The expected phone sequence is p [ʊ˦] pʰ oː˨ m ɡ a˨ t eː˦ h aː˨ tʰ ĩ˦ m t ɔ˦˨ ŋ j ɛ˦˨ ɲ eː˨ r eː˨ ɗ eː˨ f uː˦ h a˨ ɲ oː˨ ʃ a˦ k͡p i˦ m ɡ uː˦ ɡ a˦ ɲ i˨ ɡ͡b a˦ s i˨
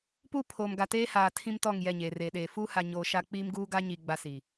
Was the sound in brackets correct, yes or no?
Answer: no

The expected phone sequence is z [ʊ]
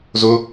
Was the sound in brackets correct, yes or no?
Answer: yes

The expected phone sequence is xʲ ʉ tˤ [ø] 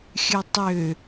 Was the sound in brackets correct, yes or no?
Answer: yes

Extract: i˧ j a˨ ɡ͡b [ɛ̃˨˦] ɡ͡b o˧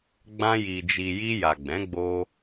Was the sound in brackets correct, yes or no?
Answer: yes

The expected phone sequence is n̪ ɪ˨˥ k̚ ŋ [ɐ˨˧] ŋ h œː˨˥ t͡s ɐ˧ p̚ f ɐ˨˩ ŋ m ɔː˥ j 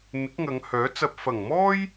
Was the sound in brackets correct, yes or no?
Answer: yes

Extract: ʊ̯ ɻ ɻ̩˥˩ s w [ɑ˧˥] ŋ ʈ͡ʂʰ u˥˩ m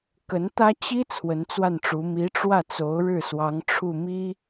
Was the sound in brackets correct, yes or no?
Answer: yes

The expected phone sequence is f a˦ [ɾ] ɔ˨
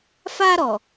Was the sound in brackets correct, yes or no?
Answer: yes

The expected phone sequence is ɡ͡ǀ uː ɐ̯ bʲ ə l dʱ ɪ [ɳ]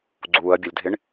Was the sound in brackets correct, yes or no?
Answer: yes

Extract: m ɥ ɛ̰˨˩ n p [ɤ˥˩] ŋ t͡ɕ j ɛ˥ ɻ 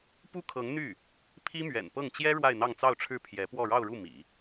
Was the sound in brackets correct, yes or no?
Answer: yes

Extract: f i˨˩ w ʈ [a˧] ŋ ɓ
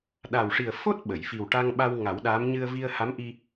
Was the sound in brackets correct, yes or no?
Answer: yes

